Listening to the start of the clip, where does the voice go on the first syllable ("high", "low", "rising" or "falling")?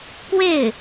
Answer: falling